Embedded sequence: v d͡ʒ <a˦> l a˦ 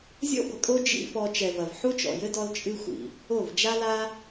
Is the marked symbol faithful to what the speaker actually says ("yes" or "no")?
yes